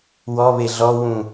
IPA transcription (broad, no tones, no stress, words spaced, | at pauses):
wɔβe ɮɔwũ